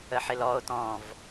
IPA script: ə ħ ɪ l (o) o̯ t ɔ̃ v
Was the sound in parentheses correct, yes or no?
no